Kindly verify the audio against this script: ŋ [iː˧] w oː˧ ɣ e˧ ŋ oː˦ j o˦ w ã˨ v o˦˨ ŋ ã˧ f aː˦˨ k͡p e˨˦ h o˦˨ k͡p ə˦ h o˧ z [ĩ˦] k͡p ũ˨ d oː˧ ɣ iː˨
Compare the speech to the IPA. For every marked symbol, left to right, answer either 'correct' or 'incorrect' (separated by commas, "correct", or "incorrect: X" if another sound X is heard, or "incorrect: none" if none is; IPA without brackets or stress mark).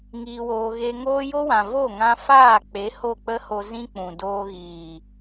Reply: correct, correct